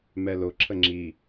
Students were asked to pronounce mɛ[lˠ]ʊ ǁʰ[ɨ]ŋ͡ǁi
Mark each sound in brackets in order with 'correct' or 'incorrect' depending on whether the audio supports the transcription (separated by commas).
incorrect, incorrect